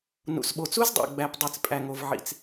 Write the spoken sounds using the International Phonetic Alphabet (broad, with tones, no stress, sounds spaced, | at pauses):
n ṵ˨ s ɓ o˨ t͡s u˦ z dˤ o̰˨ ɡ͡b æ˨ p dˤ i˨ t͡s pʼ æ˨ ŋ o˨ v ʕ ḭ˨ t͡s